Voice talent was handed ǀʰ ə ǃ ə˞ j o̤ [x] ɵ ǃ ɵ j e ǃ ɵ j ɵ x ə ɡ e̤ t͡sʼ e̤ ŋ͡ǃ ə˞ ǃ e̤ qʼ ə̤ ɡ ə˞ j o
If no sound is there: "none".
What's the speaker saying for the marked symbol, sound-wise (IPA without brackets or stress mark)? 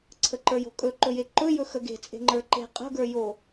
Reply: kʼ